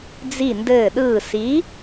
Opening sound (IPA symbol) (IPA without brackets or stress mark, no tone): d͡z